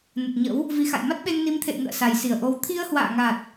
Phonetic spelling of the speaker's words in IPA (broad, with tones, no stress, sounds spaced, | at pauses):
n ə˨˩ t̚ ɲ ə̰˧˥ w | v i˨˦ x a̰˧˨ j m a˦˥ t̚ ɓ e˧ ŋ n i˨˦ m t̪ʰ ḛ˧˨ j ŋ ə̰ː˧˨ s a˨˩ j s i˧˩ ə̯ ʔ o˧ w t̪ʰ i˧ ə̯ h w a̰ː˧˨ ŋ a˨˩ t̚